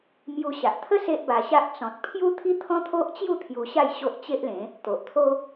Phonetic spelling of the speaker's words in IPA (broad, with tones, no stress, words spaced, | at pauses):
mju˧ɕa˨ʔ t̪ʰə˦ se˦ʔba˧ɕa˦ʔ t͡sɔ̃˨t̚pʰju˦ t̪ʰi˦t̪ʰɔ̃˦t̪ʰo˦ʔt͡ɕju˥˧ t̪ʰju˧ɕa˥˧j ɕo˦ʔt͡ɕe˦ʔlẽ˨˦ | t̪o˨ʔt̪ʰo˦